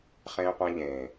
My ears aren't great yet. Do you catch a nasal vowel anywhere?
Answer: yes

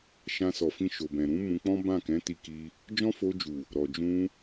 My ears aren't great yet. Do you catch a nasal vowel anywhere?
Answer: yes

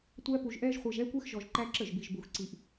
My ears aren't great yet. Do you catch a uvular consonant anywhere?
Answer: yes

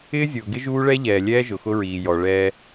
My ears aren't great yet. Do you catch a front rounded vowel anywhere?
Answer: no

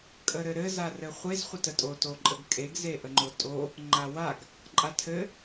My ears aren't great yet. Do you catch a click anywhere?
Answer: yes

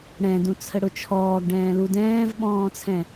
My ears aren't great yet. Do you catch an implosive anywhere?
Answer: yes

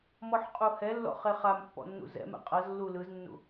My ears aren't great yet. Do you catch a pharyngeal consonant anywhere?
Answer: yes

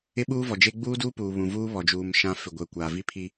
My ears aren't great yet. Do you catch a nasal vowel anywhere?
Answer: yes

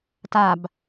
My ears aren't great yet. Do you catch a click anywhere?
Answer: no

